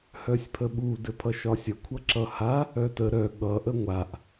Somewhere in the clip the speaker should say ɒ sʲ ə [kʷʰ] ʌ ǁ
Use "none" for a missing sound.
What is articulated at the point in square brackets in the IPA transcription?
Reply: kʷʰ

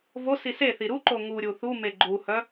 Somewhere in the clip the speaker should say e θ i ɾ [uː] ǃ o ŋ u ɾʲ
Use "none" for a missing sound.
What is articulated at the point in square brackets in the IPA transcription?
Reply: u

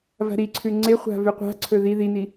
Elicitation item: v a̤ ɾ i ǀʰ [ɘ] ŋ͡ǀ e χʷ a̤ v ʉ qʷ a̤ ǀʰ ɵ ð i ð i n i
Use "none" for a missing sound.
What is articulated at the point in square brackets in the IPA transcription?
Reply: ʉ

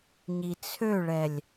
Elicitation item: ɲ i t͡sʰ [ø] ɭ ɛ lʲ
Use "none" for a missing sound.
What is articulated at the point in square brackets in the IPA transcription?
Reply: ø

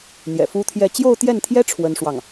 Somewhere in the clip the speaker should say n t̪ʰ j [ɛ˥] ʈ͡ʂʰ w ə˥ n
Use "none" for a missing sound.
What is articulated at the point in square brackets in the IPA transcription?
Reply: ɛ˥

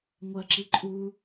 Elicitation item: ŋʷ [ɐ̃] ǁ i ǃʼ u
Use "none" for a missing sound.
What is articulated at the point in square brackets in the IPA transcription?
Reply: ɐ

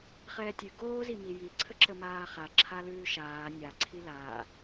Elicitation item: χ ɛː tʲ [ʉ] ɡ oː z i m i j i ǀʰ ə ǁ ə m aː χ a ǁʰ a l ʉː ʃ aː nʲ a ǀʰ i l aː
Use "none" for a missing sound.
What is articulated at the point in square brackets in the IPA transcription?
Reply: ʉ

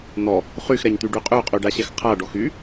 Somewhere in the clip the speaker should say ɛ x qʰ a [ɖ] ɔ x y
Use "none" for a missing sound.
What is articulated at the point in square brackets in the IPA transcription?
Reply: ɖ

